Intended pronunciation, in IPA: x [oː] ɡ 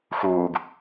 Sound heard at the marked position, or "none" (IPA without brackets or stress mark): uː